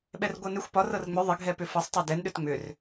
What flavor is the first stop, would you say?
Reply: implosive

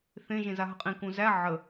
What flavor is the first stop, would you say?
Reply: ejective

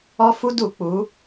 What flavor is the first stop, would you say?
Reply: plain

